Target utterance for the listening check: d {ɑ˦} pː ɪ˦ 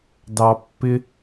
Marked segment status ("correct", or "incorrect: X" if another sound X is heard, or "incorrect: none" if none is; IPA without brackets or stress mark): correct